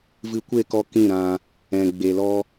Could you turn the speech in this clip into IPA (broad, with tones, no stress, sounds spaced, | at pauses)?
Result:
v ɨ˧ kʷ e˦˨ k ɔ˧ k ĩ˦˨ ɾ ã˧ | ɛ̃˨ ɡ͡b e˨ l ɔ˧